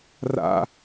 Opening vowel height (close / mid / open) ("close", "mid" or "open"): open